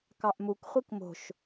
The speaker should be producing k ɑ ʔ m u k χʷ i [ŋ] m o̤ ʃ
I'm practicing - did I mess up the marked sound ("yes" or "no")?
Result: yes